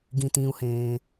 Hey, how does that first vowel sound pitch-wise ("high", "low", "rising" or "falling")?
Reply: low